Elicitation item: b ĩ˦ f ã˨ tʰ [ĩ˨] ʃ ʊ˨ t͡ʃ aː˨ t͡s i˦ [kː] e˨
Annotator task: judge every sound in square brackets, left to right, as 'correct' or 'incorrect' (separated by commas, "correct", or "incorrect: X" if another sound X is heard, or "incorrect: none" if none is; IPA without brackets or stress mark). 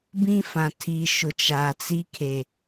incorrect: i˨, incorrect: kʰ